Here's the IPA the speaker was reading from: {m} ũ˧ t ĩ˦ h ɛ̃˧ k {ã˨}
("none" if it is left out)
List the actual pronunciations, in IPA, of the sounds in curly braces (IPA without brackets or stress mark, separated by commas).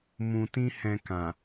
m, ã˨